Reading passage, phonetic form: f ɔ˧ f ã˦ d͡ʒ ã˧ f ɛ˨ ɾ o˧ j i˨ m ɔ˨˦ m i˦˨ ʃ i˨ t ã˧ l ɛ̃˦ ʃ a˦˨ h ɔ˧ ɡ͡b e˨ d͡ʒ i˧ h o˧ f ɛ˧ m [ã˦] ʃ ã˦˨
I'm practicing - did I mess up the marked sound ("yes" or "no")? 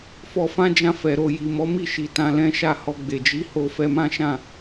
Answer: no